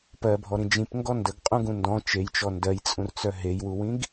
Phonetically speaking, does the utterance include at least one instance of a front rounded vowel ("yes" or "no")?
yes